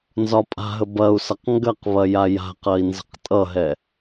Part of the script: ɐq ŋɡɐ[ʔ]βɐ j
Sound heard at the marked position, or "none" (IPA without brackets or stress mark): q